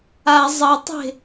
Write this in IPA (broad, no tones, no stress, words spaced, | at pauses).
a zˤɐtˤe̤